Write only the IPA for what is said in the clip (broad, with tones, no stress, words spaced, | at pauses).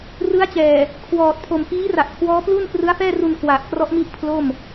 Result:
rɯ˦˥a̯t͡ɕɛː˨˩ | kʰwɔː˨˩t̚ pʰo˨˩mfiː˦˥ra˨˩ʔ kʰwɔː˦˥plu˥˩n krɯ˦˥a̯fɛː˥˩ru˧n kwa˨˩ʔ krɔ˦˥ʔmi˦˥ʔ pʰlo˥˩m